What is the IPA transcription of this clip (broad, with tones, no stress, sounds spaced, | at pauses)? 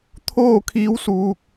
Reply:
t̪ʰ oː˥˨ kʰ iː˧˥ w s uː˧ k̚